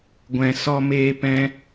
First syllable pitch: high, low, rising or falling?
low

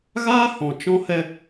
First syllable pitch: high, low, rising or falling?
high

